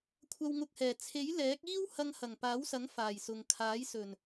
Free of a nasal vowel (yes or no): yes